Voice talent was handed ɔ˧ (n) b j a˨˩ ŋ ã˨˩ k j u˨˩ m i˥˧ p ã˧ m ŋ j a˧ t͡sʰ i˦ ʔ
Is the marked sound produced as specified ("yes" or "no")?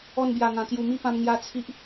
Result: yes